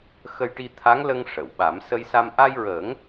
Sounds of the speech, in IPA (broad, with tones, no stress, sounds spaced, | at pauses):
x ə˧ j ʈ i˧ t̪ʰ a˧˥ ŋ l ə˧ ŋ ʂ ə˨˩˨ w ɓ a˨˩˦ m s ə˧ j s a˧ m ʔ a˧ j ɹ əː˨˩˦ ŋ